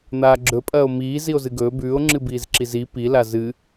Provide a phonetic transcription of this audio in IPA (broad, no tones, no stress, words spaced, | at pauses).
n̪aːɡ͡ǁɵpʼɐːo̯ miː zio̯zɨɡɵː bʉːo̯ŋ͡ǁɨbiːz ǁizi pila zɨ